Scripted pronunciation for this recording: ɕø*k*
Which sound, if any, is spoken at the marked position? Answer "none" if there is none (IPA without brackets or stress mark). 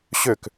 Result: k